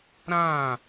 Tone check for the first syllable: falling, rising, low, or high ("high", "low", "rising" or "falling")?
falling